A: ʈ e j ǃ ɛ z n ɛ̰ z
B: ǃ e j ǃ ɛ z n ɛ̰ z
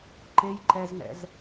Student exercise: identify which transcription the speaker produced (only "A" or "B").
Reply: B